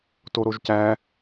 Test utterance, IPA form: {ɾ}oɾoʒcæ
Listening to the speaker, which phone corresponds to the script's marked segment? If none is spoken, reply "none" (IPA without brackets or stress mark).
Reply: t